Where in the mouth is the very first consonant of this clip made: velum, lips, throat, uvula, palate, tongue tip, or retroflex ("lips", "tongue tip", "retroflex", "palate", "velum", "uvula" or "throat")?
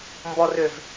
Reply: lips